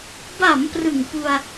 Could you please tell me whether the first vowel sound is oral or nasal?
oral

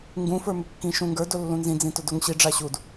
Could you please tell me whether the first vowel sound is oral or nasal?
nasal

